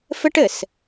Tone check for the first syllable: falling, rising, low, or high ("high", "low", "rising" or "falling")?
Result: high